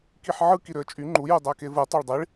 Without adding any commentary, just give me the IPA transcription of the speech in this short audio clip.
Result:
k i ħ ʕ ɯ k i ɾ ø ə̯ t͡ʃʼ y ŋ͡ǃ u j u dˤ æ k e v ɯ tˤ ɑ ɭ dˤ i ɭ

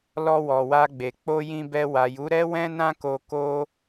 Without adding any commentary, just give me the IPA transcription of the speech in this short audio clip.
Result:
l ɔ˧ w ɔ˨ w a˧ ɡ͡b e˨ k͡p o˧ j ĩ˧ b ɛ˧ w a˨ j u˨˦ ɾ ɛ˦ w ɛ̃˦ n ã˦ k o˧ k o˦

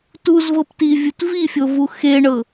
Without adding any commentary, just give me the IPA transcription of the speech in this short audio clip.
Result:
t u z v ɤ p t i vʲ u t v i fʲ o v u x e ɳ ɤ

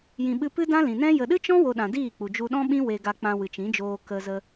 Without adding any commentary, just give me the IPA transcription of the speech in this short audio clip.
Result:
j ĩ˨ ɓ ɨ˧ p ɨ˦ d ã˦ l ĩ˨ n ɛ̃˦ j ə˨ ɗ ɨ˦ t͡ʃ ɔ̃˦ w o˧ ɗ ã˨ d iː˦˨ k͡p u˨ d͡ʒ u˧ ɗ ɔ̃˦ ɓ ĩ˦ w e˧ ɡ a˧ k͡p ã˧ w ɨ˨ t͡ʃ ĩ˨˦ d͡ʒ oː˧ k ə˧ z ə˧

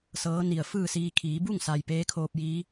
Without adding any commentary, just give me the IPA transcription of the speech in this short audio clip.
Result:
s ɤː˧˥ n i˧˩ ə̯ f ɯː˥˨ s iː˧ kʰ iː˩˧ b u˥˨ ŋ s a˩ j p eː˧˥ kʰ oː˧ p̚ j iː˧˥

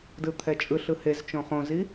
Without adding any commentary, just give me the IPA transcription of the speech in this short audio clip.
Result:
d ɯ t̪ʰ ɛ t͡ʃʼ ɯ ɬ ɯ h e z t͡ʃ õ χ õ z i

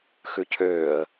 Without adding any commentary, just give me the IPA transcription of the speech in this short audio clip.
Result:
x ʉ cʰ øː ə̯

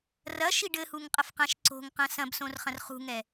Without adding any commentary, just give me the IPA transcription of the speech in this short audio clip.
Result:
r ɐ ʃ i ɖ ɘ h u ŋ qʼ ɐ f q ã ʃ ǀ o̤ ŋ q ɐ̃ s ɐ̃ b s õ r χ ɐ̃ r χ ṳ ŋ ɛ

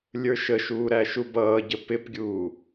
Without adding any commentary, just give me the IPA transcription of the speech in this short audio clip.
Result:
lʲ ə˞ ʃ ə ʃ uː ɾ æ ʃ u b ʌː ɟ ə p ɪ p ɡʲ uː

